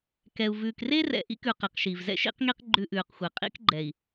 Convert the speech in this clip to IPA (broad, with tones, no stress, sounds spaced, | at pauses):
k ɛ˨ u̯ v ʉː˨ k r e˦ r ɛ̰˨ ʔ ḭ˦ k ʉ˨ q e˨˦ q ʃ i˨ v z ɛ̰˦ ʃ ḭ˦ q ŋ i˦ q ɡ͡ǃ ʉ˦ ʔ ʉː˨ q xʷ ɛ˨ qʼ ḭ˦ k ɡ͡ǃ ɛ˨ i̯